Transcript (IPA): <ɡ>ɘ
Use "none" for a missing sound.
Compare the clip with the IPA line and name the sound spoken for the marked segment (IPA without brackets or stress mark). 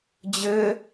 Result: d͡ʑ